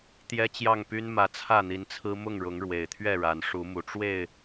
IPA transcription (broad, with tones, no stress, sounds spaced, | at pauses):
t̪ j ɛ˦ t͡ɕ j ɑ˥˨ ŋ p y˦ n m ä˨˦ t͡sʰ ä˥˨ n̪ i˨˦ n t͡sʰ ɹ̩˦ m ʊ˥˨ ŋ ɻ ʊ˨˦ ŋ ɻ w e˨˩ ɪ̯ t̪ʰ ɥ ɛ˥˨ ɻ a˨˦ n ʂ u˨˦ m u˨˩ ʈ͡ʂ w e˥˨ ɪ̯